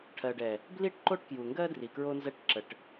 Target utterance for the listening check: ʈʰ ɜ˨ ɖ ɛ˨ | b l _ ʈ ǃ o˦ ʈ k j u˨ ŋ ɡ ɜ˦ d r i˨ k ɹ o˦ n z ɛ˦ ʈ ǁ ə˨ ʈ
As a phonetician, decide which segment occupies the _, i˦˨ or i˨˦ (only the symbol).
i˦˨